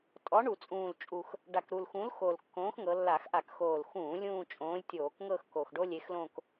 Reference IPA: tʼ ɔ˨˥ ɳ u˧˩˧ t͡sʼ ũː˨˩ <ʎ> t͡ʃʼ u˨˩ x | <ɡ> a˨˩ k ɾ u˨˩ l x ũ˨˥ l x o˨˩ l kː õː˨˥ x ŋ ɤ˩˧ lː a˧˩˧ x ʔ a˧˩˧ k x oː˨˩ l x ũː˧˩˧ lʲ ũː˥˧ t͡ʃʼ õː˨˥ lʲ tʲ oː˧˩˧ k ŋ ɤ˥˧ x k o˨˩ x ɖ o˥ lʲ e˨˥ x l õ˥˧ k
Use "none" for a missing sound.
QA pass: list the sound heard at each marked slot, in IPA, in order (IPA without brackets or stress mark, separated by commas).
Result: l, ɖ